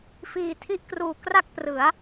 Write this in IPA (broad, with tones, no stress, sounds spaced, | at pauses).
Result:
f iː˨˩ tʰ i˦˥ ʔ k r uː˨˩ k r a˥˩ k̚ p r ɯ˩˦ a̯